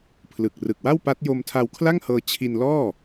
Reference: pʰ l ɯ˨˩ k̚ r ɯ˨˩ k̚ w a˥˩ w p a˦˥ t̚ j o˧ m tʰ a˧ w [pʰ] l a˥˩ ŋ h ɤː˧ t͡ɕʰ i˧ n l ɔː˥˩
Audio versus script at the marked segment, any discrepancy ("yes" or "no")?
yes